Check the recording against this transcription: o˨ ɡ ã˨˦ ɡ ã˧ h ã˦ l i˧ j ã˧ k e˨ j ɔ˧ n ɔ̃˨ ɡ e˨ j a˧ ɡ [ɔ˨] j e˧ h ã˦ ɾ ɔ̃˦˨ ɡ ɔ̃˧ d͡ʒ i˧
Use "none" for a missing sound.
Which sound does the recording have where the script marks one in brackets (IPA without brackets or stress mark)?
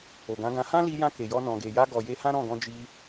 ɔ˨